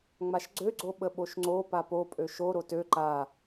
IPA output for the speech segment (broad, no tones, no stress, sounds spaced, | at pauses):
ŋ͡m a ʃ ɡ͡ǀ ø ɡ͡ǀ o ɓ ə ɓ o ʃ ŋ͡ǀ o p a p o pʼ ø ʃ o ɾ o t ø ǃ a